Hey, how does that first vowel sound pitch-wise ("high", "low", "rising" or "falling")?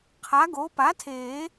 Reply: rising